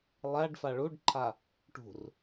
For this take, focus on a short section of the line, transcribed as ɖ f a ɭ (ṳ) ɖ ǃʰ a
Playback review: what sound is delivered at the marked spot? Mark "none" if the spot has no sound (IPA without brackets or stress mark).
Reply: u